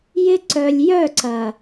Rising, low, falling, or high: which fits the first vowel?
high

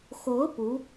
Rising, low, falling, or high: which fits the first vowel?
rising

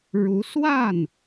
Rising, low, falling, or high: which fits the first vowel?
rising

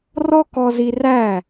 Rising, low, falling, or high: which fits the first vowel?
high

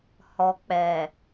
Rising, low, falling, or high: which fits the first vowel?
low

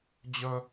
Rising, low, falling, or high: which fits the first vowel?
high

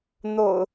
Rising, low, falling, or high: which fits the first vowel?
low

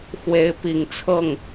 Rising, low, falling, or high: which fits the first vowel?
rising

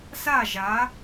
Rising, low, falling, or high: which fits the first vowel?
falling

